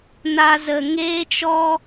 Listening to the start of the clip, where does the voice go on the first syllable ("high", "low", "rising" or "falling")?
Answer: high